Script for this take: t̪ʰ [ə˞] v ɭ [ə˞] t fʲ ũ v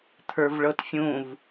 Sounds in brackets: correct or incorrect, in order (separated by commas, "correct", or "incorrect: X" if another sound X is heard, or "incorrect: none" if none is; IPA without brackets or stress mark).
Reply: correct, incorrect: ɤ